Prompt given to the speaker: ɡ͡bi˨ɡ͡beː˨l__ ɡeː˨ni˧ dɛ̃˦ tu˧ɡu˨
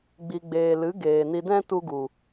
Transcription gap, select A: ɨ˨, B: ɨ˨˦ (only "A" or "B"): B